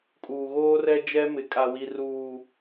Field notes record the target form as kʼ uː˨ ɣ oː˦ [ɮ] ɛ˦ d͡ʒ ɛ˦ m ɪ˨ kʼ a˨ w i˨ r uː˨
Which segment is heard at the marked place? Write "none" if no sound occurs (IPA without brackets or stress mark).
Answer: r